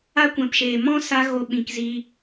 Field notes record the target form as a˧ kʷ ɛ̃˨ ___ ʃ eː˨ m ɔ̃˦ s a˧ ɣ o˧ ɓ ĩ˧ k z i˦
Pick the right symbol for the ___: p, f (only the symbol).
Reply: p